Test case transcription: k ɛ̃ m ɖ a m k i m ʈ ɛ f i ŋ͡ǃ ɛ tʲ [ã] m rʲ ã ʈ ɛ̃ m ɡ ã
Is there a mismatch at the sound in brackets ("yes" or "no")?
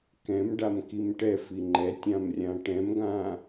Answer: no